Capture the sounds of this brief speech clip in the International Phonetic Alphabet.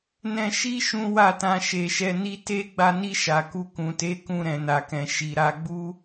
nɛ̃˧ʃi˦ ʃũ˦wa˦˨tã˧ ʃe˨ʃɛ˧ni˦ te˦ ɡ͡ba˧ni˧ ʃa˨ku˧ kũ˨te˨˦ kũ˧ɾɛ̃˨na˨kɛ̃˨ ʃi˨ɾa˧ ɡ͡bu˦

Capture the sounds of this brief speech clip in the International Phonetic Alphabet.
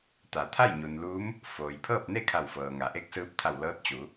t̪a˩˧t̪ʰa˥˨j ɲu˩nluː˧˥m | foː˩jpʰɤː˥˨p̚ne˥˨ kʰa˧˩wfɤː˩ŋa˩˧ ʔe˧˥k̚sɯː˧p̚t̪ʰa˧˩w lɤː˧˥t̚t͡ɕu˩˧

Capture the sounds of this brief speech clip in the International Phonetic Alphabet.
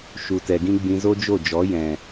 ʃu˨tɛ˨ɡĩ˦ ɡ͡bĩ˧zo˦d͡ʒo˦˨d͡ʒɔ˨˦ jɛ̃˨

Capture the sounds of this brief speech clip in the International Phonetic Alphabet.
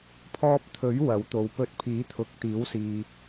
pʰɔː˧p̚t̪ʰɵ˨˥ɥ wɐ˨˥wt̪o˨˧w pɵ˨˥t̚ pʰiː˨˥t̪ʰʊ˨k̚t̪iː˨˥wsiː˨

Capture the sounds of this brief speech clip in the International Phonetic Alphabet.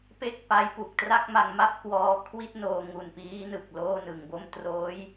pe˥˩k̚pa˦˥jpu˨˩k̚ tra˥˩k̚ma˧ŋma˥˩p̚kwɔː˧ kʰwi˥˩t̚noː˧ŋu˨˩n piː˦˥nɯ˨˩k̚ loː˥˩nɯ˨˩ŋbo˥˩m troː˦˥j

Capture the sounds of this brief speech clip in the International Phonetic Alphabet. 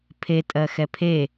pʰetʼɜ xɛpʰe

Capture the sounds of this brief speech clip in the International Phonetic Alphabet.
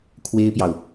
kʰwe˥ɪ̯pjɑ˨ʊ̯

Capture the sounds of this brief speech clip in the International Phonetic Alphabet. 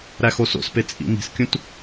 ɾæxoso̰spe t͡sʼḭmi̤skʲũt

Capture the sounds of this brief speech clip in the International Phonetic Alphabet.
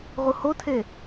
ʁuhotʰe

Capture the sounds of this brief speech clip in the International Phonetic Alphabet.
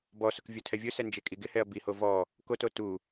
bɔsʊk vʲotʰɛvʲʊsɛ nd͡ʒekʼiɡɪhɛɐ̯ biho vɔ | koto tu

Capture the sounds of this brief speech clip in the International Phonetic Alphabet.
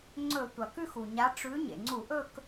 ŋ͡ǀɵ˧˩˧ tʷɐ˩kʉ˥˧xu˩ɲa˨˦ ʈ͡ʂʉ˨˦ ɲḛ˩ŋ͡ǀu˧˩˧ʔɵ˥˧k

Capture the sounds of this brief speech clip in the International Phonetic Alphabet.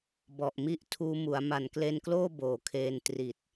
bɔ˨˩ʔmi˦˥ʔ tʰuː˧ mu˩˦a̯ ma˨˩nkle˧nkloː˥˩ boː˨˩kʰeː˧n tri˨˩t̚

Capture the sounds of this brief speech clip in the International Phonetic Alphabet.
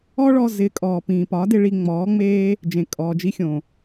ɔ˦ɭɔ˧ zɪ˨˦ kʼɔː˨pĩː˨pɒ˨˦dɪ˧ ɭi˧ŋ͡mɔː˨˦ŋ͡meː˦ | d͡ʒẽ˨kʼɔː˨d͡ʒi˧xʲõ˨

